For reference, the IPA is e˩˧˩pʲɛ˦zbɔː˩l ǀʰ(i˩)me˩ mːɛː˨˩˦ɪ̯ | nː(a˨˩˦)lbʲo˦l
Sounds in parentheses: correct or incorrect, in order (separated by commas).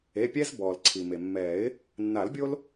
correct, correct